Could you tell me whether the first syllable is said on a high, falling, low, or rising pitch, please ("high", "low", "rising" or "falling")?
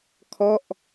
falling